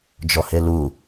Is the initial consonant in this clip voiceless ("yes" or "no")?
no